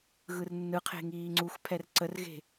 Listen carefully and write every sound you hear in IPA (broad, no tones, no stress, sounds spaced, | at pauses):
ɣ ɯ r nː ɯ qʰ e̤ ŋ iː ŋ͡ǀ u x pʰ ɛ r ǀ ə r ɣ e̤